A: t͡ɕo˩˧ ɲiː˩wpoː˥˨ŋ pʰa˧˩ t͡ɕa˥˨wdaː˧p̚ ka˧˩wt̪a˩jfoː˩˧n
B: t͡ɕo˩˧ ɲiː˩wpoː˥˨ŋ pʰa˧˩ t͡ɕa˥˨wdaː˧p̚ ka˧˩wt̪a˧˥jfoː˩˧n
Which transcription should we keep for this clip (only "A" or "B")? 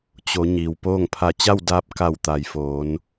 A